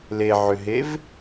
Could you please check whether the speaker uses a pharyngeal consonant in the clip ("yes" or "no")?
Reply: yes